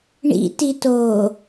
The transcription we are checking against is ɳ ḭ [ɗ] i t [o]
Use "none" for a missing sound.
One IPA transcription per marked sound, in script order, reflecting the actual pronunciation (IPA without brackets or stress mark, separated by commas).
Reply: t, oː